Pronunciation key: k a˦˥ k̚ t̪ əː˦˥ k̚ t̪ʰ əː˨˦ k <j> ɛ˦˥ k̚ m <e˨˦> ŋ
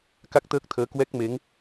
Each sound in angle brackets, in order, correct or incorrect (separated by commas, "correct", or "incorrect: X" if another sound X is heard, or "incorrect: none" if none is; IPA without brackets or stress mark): incorrect: w, correct